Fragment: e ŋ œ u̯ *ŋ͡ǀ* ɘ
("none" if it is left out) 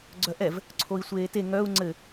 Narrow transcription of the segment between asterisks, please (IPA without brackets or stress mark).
ŋ͡ǀ